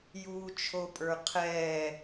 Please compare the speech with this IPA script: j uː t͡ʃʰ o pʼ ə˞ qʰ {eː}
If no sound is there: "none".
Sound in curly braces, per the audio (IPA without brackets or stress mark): ɛː